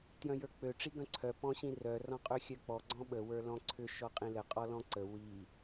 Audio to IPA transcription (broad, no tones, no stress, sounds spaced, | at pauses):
t j œ̃ j ə˞ k͡p ø ʈ͡ʂ i ɡ œ̃ ǀʰ œ p ɔ̃ ɕ ĩ r œ r ɔ̃ qʼ ø xʲ œ k͡p ɔ ɡ͡ǀ ɔ̃ ɓ ə w ə˞ l ɔ̃ ǀʰ ʏ ʃ ɔ qʼ ĩ l ə qʼ ɔ l ɔ̃ ǀ ə w i